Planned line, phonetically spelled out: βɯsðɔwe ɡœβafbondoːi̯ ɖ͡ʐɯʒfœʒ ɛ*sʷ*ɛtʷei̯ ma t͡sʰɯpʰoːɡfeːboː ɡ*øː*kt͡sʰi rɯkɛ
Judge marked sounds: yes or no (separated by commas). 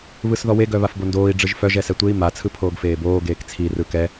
no, no